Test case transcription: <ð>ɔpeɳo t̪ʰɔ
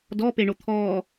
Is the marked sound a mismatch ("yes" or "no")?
yes